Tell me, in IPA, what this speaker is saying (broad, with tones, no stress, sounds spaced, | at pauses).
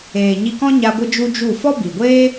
eː˨ ɲ i˧ k ɔ̃˦ ɲ a˧ ɡʷ ɨ˦ d͡ʒ u˦ d͡ʒ u˦˨ f ɔ˦ b i˨ ɡʷ eː˦